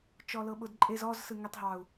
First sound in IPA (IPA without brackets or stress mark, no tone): t͡ʃ